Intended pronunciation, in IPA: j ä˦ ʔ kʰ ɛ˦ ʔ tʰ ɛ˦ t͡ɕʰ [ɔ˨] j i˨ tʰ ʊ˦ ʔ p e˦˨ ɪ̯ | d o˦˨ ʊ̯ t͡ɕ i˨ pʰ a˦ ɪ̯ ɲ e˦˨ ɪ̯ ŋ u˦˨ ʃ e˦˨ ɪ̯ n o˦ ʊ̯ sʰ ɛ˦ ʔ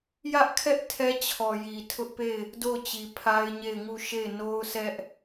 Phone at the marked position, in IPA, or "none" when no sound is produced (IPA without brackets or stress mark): ɔ˨